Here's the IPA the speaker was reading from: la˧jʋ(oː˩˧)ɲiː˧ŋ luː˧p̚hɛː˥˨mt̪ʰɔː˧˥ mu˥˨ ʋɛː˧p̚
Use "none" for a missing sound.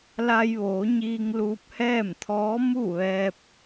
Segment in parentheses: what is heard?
oː˩˧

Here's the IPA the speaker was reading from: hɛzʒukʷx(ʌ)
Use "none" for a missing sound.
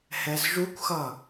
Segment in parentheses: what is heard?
ʌ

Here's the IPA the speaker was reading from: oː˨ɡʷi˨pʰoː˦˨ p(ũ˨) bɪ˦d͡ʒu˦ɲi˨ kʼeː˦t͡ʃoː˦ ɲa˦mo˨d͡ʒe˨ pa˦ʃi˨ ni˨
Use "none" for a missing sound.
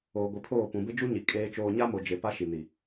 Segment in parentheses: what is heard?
ũ˨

